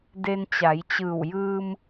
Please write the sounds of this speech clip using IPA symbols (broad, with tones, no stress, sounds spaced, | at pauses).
d e˧ n t͡ɕ a˩˧ j t͡ɕ ɯː˧˩ w j ɯː˧ m